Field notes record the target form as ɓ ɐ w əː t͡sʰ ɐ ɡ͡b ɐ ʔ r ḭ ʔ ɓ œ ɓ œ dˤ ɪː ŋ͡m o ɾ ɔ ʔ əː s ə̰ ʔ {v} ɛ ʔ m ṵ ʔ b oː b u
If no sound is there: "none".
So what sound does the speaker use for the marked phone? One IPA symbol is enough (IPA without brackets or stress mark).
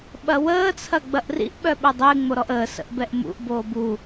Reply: b